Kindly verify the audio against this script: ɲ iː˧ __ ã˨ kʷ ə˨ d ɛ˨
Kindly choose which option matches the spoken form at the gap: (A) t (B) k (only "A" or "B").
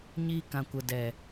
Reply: B